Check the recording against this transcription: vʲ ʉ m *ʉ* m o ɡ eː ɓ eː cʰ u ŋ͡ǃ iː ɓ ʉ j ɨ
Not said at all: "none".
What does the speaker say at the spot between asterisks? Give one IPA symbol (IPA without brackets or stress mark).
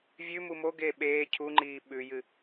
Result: u